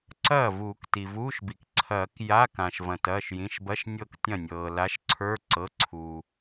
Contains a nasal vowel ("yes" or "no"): yes